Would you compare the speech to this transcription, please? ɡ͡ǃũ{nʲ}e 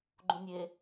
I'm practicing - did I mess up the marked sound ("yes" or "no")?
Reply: no